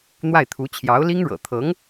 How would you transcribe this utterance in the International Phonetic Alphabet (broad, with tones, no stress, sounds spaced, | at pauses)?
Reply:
n̪ w a˥˩ ɪ̯ t̪ʰ u˧˥ t͡ɕʰ j ɑ˧˥ ʊ̯ l i˥ ŋ ɻ ɤ̰˨˩ t̪ʰ ɤ˧˥ ŋ